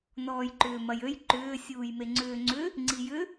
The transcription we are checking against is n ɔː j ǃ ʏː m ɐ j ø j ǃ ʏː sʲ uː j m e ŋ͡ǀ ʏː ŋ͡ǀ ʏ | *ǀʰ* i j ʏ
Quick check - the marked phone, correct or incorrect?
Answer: incorrect